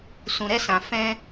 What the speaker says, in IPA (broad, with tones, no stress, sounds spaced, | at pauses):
s ũ˨ ɾ ɛ˧ s ã˨ f ɛ̃˧